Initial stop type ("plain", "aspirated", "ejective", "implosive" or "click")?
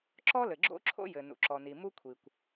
click